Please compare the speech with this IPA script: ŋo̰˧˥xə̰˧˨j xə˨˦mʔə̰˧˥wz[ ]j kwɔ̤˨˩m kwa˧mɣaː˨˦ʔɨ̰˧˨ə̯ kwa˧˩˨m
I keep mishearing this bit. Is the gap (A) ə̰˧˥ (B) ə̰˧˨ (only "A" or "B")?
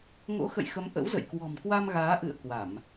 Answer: B